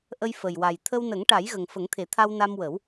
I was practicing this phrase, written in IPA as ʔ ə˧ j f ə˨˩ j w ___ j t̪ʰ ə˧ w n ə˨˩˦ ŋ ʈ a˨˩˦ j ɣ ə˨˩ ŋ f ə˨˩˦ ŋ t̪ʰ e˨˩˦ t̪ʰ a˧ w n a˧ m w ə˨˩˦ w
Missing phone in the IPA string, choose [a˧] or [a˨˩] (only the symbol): a˨˩